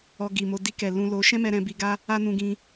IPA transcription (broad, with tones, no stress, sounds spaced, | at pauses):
ɔ˧ ɡ i˨ m o˧ d i˧ k ɛ˨ l ũ˧ l o˧ ʃ ɛ̃˦ m ɛ˧ ɾ ɛ̃˧ b i˧ ɡ a˦ | a˦ n ũ˧ ɡ ĩ˧